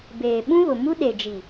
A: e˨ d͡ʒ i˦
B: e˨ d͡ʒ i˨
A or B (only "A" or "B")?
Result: B